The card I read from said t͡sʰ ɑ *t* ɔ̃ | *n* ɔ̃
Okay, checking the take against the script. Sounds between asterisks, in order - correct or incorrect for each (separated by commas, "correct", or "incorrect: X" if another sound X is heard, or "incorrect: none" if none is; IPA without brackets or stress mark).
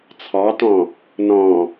correct, correct